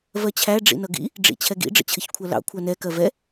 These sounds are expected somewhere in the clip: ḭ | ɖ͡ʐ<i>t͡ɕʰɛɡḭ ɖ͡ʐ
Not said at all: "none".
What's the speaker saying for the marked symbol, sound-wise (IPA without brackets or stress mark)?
ḭ